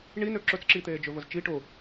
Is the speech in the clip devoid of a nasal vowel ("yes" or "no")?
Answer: yes